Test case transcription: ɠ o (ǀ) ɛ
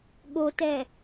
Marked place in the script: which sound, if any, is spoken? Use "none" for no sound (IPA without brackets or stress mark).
t